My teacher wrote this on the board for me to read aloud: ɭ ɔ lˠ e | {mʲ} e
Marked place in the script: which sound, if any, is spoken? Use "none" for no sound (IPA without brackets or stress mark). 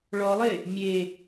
mʲ